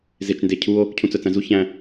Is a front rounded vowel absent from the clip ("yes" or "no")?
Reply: no